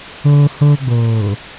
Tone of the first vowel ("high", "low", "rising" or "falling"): high